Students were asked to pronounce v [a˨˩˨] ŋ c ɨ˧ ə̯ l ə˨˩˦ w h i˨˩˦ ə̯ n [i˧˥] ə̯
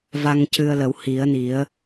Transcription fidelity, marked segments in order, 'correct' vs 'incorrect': incorrect: a˧, incorrect: i˨˩˦

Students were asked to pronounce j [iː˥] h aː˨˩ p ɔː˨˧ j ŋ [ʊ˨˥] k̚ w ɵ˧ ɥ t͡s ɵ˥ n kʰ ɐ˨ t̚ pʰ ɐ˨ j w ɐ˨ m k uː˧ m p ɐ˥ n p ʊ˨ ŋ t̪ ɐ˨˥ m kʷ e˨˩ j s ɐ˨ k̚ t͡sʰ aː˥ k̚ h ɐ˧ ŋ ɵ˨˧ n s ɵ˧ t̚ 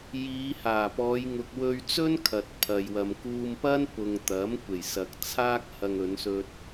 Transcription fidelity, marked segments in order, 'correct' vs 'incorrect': incorrect: iː˨˧, incorrect: ʊ˨

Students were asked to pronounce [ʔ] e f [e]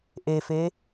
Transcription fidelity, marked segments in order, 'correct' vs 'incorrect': correct, correct

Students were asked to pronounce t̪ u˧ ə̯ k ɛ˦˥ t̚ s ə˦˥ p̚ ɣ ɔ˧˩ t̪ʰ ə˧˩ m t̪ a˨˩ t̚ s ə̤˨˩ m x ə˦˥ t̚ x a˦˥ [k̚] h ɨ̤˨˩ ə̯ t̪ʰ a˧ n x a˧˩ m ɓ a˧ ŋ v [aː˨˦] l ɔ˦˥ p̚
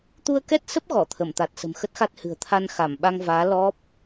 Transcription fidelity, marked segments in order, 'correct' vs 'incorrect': incorrect: t̚, correct

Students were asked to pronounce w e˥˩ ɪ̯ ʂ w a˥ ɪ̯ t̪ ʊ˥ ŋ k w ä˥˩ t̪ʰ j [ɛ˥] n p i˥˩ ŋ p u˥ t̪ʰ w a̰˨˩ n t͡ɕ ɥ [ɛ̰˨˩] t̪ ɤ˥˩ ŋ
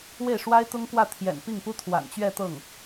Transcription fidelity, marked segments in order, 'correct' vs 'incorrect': incorrect: ɛ̰˨˩, incorrect: ɛ˥˧

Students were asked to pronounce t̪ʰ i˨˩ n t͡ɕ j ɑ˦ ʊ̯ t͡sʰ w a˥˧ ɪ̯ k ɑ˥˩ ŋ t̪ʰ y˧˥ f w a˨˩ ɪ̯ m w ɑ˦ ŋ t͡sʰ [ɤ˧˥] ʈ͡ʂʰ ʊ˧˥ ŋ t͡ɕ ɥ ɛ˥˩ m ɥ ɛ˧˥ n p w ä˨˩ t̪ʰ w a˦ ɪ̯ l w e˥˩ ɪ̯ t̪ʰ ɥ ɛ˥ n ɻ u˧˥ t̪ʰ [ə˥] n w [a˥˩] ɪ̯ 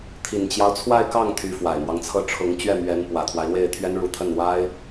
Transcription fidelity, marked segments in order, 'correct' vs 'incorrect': incorrect: ɤ˥˩, incorrect: ə˥˩, incorrect: a˥

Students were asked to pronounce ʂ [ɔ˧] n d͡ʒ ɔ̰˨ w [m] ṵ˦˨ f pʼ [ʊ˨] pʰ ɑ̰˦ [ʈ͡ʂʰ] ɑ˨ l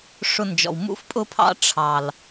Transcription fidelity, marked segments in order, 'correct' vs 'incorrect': incorrect: ʊ˧, correct, incorrect: ʊ˦, correct

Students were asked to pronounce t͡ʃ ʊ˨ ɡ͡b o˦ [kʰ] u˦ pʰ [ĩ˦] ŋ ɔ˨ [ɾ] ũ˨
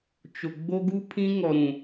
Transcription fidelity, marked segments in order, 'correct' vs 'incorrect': incorrect: ɡ, correct, correct

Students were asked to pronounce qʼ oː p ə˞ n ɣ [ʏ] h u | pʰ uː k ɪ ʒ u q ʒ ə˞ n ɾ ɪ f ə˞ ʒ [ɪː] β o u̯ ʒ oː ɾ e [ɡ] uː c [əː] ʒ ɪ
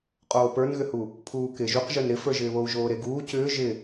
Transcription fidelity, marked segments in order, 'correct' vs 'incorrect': correct, correct, correct, incorrect: ʏː

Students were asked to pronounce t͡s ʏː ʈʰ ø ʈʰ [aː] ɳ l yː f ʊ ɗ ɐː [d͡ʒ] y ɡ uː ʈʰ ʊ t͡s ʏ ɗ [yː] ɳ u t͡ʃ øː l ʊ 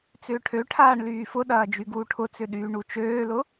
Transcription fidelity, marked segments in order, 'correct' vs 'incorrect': correct, correct, correct

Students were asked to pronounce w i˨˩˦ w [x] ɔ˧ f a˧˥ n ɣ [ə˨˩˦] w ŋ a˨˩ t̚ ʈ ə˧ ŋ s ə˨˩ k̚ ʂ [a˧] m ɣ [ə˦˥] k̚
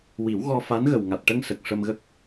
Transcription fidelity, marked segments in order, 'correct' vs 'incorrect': incorrect: ɣ, incorrect: ə˨˩, incorrect: ə˧, correct

